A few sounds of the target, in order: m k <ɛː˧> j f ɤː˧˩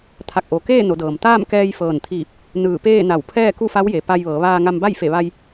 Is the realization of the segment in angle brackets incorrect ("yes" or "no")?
no